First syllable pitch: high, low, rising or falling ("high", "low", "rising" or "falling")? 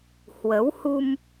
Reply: rising